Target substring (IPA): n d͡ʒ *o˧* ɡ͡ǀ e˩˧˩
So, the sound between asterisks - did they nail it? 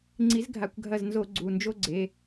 no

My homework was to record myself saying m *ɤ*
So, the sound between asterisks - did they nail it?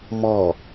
no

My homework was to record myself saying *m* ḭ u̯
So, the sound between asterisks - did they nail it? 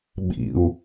no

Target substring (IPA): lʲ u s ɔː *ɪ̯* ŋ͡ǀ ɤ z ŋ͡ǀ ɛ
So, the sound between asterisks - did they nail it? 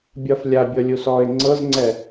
yes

